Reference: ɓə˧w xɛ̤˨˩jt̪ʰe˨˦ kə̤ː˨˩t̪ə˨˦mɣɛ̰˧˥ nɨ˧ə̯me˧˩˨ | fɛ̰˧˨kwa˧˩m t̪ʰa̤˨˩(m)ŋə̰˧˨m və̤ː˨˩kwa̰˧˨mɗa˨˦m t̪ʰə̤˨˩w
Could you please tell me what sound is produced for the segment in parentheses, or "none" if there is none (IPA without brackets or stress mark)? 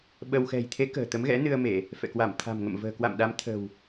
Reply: m